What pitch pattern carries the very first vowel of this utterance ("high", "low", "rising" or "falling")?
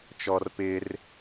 high